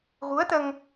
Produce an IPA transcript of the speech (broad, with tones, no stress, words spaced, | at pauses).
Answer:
ɣu˧˥ə̯t̪ə˧ŋ